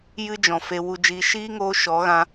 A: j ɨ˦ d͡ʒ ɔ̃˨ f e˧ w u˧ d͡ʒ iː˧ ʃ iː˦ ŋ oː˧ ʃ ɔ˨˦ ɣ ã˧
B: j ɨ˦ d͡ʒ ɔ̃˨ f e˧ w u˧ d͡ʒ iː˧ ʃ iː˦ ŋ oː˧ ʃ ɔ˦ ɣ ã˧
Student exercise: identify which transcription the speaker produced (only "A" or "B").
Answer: A